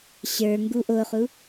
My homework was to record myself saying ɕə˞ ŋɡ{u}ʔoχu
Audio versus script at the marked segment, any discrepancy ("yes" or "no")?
no